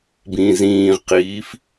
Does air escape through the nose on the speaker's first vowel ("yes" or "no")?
yes